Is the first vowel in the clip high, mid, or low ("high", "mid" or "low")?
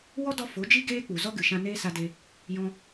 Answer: mid